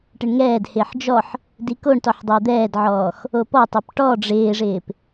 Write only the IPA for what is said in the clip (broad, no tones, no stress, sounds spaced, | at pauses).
ʈ ɪ ɳ ŋ ɛː d h ɪː ħ d͡ʒ ɔ ħ | d i k o ɳ t ɔ ħ dˤ ɪː d̪ ɛː d ʕ ɔː x | o p ɔ tˤ ɛ p ʈ ɔ ɖ͡ʐ ɪː ʐ ɪː p